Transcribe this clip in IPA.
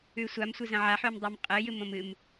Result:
ʉsʷam sʷɨzɐ̃ʕaħ ʉmdˤɨmqʼɨ jɨmõmɨm

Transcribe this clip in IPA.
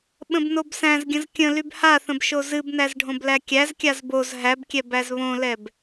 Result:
ɓə̃bnobsæ̃zɡʲə̃z kʲə̃ lybhaθə̃b ʃozɨbnæz ɖʱõblækʲæzkʲaz boz ɦæbkʲɛ bæzβõlɛb

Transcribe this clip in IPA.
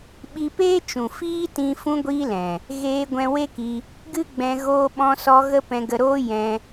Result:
ɓi˧peː˦t͡ʃũ˨ fiː˦tĩ˧ fũ˦ɡʷiː˦lɛ̃˨ | ɣeː˧ ɡʷɛ̃˧we˦ki˧ | ɡɨ˦ɡ͡bɛ̃˧ ɣoː˧ɓɔ̃˧sɔ˧ ɣə˦pɛ̃˧ɡə˧ ɾoː˦ jɛ̃˧

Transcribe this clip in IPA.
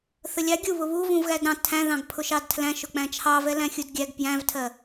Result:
θəlʲɑ ɡʲu βʊβuvũvɣæd ɾɑ̃ tʰæ̃ðɑ̃ɡ pʰʊʃɑdtʰlæ̃ ʃʊk͡pæ̃t͡ʃʰɑvɛ læ̃xʲudɡʲæɡ pjæ̃vtʰɜ

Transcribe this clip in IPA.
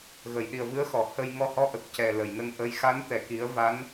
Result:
ɣə˨˩˨jɗi˨˩ə̯vɨ˧˥ə̯xɔ˨˩˨ hə˧j ŋɔ˧hɔ˧˥ ʔə˨˩k̚cɛ˨˩ lə˨˩˨jnə˧ŋ ʔə˧˥j xa˧˥nt̪ɛ˨˩ki˨˩˦ə̯ va˧˥n

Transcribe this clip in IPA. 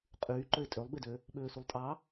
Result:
qʼyː ǃøɪ̯tʼølˠbedø | ɓøːsulˠtʼɑ

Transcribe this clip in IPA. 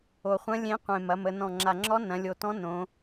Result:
o˨˩χʷɐ̃˧˥ lʲẽ˧˥qʷẽ˨˩ mɐ˩˧mə˩˧ nɔ̃˨˩ŋ͡ǁa˨˩ŋ͡ǁɔ˧˥ nɐ̃˩˧lʲo˨˩tɔ̃˧˥ nõ˩˧

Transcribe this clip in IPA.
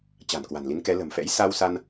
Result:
t͡ɕa̤˨˩nkwa̤˨˩nli˨˦nkɛ˨˦ lə̤˨˩mfɛ̰˧˥j sa˧wsa˧n

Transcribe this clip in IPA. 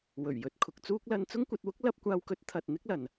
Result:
wɵ˨˩ɥjɵ˨t̚ kʰʊ˨k̚t͡suː˥k̚ lɐ˧n t͡sʊ˥ŋkʷɐ˧t̚wʊ˥k̚ lɐ˧p̚kʷaː˧wkɵ˨˥t̚ t̪ʰɐ˨t̚ n̪ɪ˥k̚lɐ˨n

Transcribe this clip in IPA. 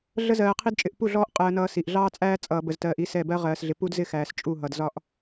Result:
ɮə˦ zɜː˨qʰi˦dt͡ʃʼɪ˨ʔ pu˦˨ɮɔː˦ʔ qʼɜː˦nʌː˦si˨ʔ ɮɑː˦t͡sʼæː˦ t͡sʼʌː˨bə˨ztɜː˨ʔ i˦sɛ˦˨ bɜ˦ʁɜː˨sɮɪ˨ pu˦dzɪ˦xæː˨s t͡ʃʼu˦˨ɦʌ˨dzɒ˦ʔ

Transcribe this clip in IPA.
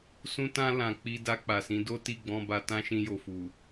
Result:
sũ˧tã˧ lã˨ k͡pi˧ da˧k͡pa˨sĩ˨˦ do˦ti˦˨ɡ͡bɔ̃˧ ba˧tã˦ ʃĩ˧jo˨fu˨

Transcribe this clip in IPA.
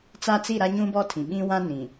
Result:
t͡sa˦t͡si˦˨ɾa˦ ɲũ˦bɔ˦tʰĩ˨ ɓĩ˦wã˦nĩ˨

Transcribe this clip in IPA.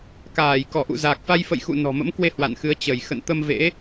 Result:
kaː˧˩j kɔ˧˩ʔṵ˧˨zaː˨˩k̚fa˧j fə̰˧˨jxṵ˧˨ nɔ̤˨˩mə̰˧˥mkwe˧ hwa̰˧˨nxɨ˨˦ə̯ t͡ɕə˧˩j xə̰˧˨n t̪ə˧mvḛ˧˥

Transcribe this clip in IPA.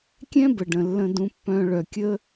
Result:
kʲɛ̃˥bə˩ ɖə̃˩lːə̃˨dũ˨ pːœ̃˨ɭœ˩kʲə˦

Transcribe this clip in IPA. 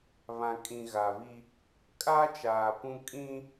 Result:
βã˨kʼĩ˨ ɣa˨βi˦ | kʼaː˦t͡ʃaː˨ pũ˦kʼĩ˦

